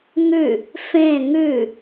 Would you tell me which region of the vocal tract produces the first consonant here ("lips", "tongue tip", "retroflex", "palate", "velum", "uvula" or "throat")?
velum